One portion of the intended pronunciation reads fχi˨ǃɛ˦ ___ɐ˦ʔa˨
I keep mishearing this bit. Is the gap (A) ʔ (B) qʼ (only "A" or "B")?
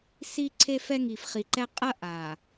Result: B